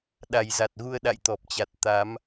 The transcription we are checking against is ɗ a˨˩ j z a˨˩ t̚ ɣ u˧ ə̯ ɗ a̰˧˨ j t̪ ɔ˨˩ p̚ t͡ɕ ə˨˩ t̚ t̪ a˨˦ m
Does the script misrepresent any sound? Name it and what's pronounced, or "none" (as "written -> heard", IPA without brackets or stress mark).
ə˨˩ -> a˨˩